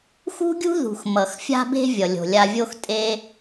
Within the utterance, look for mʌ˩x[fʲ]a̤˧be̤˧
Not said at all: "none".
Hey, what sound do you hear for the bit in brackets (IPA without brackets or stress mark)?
fʲ